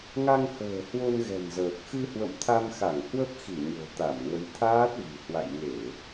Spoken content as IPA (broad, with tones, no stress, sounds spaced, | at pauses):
ŋ a˧ ŋ h ə̤ː˨˩ h w o˧ n ɣ ɛ̤˨˩ n z əː˨˩ k̚ x ɨ˧ h w ə̰˧˨ m t̪ʰ a˧ m x a˧˩ ŋ h w ə˦˥ p̚ x i˧˩ ɲ o̤˨˩ t̪ a˧˩ m ŋ ə˨˦ j t̪ʰ aː˦˥ t̚ v i̤˨˩ h w a̰˧˨ j ŋ e˧˩˨